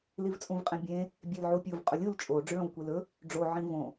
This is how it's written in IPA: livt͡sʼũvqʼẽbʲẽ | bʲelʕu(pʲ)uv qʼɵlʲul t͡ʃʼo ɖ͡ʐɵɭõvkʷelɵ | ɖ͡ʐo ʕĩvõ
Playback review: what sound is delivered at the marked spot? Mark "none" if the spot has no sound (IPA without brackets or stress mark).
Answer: pʲ